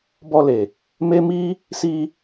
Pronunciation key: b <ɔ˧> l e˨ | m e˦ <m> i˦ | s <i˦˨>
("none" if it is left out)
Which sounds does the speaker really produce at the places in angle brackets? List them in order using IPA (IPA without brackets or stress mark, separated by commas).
ɔ˧, m, i˧